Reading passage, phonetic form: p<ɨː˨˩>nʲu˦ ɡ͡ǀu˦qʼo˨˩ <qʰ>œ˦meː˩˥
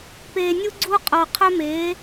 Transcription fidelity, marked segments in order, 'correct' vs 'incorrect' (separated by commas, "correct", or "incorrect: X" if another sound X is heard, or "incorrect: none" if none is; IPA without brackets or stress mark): incorrect: eː˨˩, correct